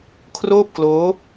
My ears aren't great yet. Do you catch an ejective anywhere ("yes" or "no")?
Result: no